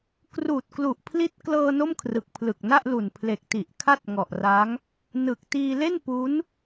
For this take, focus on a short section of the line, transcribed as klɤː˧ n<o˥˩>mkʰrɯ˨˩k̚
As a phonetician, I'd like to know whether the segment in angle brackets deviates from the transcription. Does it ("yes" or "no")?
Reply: no